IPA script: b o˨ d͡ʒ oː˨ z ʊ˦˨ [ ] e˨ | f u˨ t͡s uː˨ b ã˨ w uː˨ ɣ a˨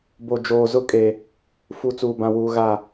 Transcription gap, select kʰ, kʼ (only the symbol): kʼ